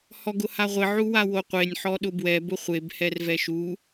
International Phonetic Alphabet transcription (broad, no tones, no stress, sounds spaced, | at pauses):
h ɔ ɡ ʊ h a ʁʷ ɪ ʕ u w a w o qʷ e nʲ ħ ɔ ɗ ʊ b w ɛ b ʊ χʷ e b h ɛ r v ɛ ʃ u